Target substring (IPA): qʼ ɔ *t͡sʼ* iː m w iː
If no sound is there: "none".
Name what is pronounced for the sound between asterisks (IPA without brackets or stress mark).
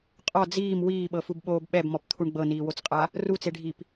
d͡z